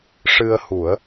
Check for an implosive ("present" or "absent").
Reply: absent